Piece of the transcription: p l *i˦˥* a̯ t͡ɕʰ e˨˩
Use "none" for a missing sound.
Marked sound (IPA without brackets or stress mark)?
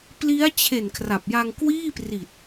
i˦˥